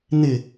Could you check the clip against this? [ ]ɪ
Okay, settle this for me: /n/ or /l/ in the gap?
n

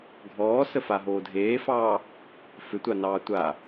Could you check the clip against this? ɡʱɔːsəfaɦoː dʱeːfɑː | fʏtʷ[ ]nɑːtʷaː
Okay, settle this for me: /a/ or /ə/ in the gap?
a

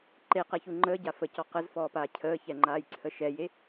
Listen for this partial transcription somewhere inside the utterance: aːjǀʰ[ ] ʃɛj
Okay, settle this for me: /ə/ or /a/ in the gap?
ə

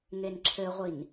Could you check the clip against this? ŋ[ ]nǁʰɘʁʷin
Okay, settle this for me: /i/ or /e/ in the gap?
e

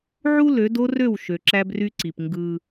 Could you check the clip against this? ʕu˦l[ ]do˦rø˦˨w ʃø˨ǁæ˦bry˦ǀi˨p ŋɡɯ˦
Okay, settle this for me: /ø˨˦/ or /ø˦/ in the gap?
ø˨˦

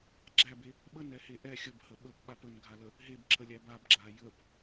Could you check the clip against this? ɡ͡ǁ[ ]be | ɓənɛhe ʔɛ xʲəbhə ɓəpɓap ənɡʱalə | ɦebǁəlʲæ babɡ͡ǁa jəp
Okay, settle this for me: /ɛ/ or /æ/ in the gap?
æ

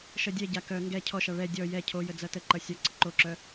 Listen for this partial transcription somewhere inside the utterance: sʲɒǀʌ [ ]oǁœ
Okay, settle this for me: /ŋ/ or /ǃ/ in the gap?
ǃ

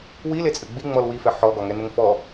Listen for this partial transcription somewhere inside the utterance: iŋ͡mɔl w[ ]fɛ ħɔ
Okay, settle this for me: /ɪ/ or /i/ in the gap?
i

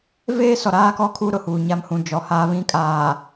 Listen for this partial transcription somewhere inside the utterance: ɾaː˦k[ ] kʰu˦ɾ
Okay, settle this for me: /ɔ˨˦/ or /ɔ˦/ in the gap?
ɔ˦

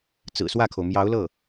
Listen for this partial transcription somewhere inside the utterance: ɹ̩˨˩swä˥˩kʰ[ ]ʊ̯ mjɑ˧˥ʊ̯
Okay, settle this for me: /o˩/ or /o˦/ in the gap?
o˩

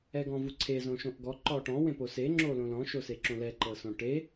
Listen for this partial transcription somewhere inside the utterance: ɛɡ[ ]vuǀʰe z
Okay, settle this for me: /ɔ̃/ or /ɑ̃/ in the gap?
ɔ̃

